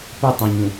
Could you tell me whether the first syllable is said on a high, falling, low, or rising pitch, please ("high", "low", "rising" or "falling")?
falling